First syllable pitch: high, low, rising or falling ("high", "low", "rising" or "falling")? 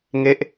falling